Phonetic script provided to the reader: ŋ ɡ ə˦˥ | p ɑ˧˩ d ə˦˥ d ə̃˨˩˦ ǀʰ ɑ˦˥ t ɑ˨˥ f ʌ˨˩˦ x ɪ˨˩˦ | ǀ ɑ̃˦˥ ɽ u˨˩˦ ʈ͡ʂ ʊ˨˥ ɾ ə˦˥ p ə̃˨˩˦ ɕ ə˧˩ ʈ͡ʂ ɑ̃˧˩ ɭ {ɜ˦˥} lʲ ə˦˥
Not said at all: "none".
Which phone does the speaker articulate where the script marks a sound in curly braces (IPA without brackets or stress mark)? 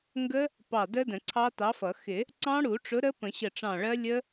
ɜ˦˥